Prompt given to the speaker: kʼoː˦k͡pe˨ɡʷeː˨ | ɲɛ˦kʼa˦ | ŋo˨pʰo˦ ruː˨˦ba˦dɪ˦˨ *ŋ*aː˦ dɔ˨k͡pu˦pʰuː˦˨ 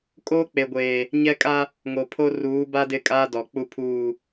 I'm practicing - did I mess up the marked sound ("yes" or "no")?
yes